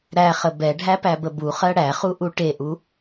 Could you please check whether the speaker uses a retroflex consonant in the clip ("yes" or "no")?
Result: yes